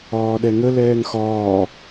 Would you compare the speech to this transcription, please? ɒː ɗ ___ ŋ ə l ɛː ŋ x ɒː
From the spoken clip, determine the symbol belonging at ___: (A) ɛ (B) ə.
A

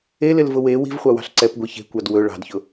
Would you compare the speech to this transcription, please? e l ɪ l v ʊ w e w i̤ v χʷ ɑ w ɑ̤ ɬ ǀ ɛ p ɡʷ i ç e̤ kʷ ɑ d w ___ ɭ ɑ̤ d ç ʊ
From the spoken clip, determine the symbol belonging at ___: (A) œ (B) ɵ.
B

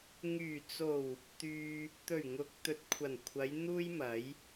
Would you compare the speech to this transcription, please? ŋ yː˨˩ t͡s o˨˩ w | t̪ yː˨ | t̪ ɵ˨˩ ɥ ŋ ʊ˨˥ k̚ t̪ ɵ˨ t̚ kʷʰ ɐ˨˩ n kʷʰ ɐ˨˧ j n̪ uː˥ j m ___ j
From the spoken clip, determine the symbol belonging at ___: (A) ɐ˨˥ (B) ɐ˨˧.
A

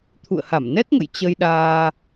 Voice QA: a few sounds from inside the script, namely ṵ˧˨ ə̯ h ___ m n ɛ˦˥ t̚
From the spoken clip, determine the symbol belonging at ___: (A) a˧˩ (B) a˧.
A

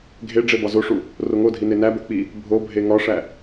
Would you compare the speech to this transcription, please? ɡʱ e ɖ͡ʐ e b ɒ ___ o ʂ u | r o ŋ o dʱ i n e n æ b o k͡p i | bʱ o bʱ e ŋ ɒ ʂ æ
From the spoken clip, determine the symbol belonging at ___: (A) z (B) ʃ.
A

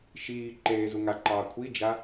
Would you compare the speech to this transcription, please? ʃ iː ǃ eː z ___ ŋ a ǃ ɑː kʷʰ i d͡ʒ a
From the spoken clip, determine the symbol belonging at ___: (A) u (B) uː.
A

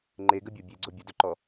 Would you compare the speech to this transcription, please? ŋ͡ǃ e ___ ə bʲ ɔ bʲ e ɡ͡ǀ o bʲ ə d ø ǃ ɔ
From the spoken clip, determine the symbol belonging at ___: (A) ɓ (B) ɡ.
B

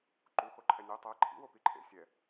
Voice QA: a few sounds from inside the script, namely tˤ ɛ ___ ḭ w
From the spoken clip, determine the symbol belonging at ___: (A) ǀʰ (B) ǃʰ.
B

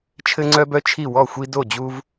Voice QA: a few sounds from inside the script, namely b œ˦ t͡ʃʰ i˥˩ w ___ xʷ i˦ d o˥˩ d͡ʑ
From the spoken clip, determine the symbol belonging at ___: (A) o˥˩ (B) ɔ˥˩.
B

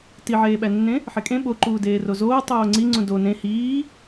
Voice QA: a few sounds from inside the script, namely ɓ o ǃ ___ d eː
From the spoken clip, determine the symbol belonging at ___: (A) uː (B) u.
A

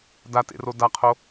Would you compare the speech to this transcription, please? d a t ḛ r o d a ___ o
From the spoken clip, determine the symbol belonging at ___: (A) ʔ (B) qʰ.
B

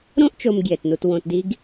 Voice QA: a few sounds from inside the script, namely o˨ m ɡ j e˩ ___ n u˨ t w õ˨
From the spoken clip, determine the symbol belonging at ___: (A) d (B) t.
B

